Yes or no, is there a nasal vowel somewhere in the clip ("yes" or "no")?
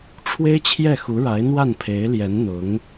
no